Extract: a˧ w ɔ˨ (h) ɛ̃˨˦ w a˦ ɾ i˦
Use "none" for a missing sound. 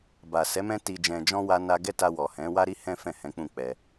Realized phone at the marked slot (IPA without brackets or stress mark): h